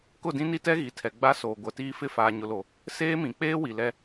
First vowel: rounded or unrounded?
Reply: rounded